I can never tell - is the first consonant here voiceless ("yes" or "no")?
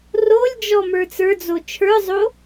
no